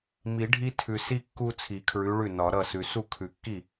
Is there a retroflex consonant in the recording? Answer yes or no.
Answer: yes